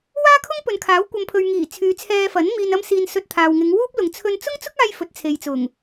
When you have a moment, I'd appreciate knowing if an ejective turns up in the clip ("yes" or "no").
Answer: no